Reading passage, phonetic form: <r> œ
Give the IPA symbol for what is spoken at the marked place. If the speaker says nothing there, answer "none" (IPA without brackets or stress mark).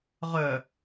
ʁ